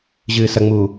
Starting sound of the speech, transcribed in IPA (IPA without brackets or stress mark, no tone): ʑ